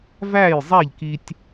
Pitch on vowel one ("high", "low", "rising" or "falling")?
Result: falling